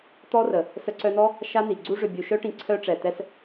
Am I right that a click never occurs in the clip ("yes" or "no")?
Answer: no